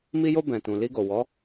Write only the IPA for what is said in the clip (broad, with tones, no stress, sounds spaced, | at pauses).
m i˧ j o˧ b ɛ̃˨ t ũ˨ l i˧ ɡ o˨ w ɔ˨˦